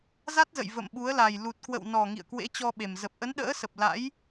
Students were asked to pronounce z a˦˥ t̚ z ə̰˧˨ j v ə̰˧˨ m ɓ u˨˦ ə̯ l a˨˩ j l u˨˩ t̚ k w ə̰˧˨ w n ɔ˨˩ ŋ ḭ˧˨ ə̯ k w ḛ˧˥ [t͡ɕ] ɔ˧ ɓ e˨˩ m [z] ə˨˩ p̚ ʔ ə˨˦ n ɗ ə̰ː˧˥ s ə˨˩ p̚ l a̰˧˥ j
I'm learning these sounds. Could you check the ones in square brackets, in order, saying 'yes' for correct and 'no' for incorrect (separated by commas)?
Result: yes, yes